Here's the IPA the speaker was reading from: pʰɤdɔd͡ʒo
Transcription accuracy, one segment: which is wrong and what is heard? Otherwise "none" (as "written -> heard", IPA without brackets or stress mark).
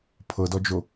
none